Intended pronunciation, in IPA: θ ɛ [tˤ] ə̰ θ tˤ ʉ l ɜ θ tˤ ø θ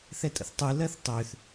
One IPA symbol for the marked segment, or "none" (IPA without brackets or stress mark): tʼ